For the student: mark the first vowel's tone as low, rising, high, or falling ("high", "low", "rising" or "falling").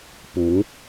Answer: rising